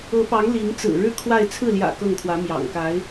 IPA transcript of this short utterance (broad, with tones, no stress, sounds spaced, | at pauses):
ɤ˧˥ p ɑ˧˥ ŋ l i˧˥ ŋ t͡s ɹ̩˨˩ ɻ ɻ̩˥˧ kʰ w a˥˧ ɪ̯ t͡sʰ ɹ̩˥˩ l j ä̰˨˩ k ɤ˥˩ ŋ kʰ w ä˧˥ m j ɑ̰˨˩ ŋ k a˧˥ ɪ̯